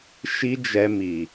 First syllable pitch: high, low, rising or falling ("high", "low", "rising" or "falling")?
high